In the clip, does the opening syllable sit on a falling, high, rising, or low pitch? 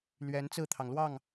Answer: rising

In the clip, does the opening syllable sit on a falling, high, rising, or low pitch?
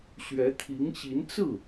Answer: rising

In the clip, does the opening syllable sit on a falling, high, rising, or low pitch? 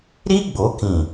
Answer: high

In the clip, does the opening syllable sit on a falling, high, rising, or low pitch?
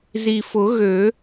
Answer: low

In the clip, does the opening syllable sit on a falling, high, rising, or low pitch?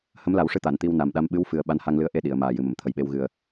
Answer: rising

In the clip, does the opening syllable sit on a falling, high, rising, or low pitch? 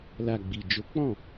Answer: low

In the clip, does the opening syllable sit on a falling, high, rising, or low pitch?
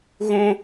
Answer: high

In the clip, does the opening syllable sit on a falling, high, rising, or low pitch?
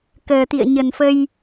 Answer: low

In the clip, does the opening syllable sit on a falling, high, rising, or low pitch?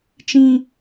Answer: high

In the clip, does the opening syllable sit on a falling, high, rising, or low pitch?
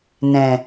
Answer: low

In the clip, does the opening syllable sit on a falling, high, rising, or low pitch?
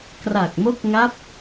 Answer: low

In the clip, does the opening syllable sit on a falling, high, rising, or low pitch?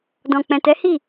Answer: low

